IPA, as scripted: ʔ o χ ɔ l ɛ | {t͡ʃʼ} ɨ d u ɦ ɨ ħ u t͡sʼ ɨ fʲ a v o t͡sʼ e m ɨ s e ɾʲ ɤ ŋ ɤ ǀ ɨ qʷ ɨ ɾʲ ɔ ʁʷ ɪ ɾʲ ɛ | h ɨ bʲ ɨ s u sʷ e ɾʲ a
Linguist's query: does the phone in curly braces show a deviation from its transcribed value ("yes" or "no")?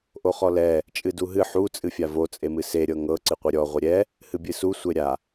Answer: no